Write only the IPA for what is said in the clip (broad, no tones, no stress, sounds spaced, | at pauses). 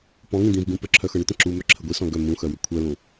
p ɔ̃ ŋ ĩ d̪ ĩ v ɡ ũ p ə ǁʰ œ x ɤ ɳ ʏ t̪ ə̃ ǁ u m œ ǁʰ ə ɡʷ i s ɔ̃ ɡ œ m ũ x œ w ʏ kʷʰ œ l ũ